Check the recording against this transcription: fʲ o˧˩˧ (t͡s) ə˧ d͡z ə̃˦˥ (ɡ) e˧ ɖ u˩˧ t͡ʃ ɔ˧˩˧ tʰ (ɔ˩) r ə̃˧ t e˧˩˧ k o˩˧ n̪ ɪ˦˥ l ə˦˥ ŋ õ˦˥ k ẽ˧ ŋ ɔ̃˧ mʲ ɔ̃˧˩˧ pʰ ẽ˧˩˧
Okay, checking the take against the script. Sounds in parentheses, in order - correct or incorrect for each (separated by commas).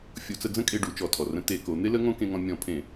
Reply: correct, incorrect, correct